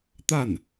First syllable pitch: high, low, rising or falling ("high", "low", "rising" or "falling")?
falling